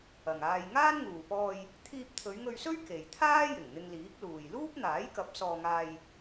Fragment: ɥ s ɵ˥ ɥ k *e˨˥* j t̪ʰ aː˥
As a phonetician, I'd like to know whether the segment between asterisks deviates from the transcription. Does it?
yes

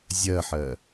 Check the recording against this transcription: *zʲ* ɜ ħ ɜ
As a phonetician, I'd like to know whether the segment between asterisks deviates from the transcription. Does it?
no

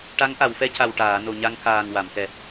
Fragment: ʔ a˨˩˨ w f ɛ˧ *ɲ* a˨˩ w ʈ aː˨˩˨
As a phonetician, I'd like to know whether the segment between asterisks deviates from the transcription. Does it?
yes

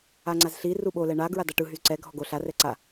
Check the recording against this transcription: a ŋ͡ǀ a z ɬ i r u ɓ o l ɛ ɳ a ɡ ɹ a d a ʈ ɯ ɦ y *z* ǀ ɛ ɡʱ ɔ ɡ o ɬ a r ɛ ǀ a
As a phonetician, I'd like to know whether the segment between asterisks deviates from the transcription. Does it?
no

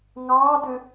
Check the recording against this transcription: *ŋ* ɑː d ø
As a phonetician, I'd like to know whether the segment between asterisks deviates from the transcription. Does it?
no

